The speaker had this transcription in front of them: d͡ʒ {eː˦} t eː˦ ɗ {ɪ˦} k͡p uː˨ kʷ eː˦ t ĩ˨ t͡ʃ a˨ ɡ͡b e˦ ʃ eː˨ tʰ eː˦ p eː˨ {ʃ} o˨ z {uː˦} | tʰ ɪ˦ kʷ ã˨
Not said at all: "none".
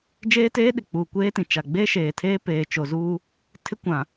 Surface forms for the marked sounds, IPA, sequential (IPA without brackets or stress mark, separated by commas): eː˦, ɪ˨, t͡ʃ, uː˦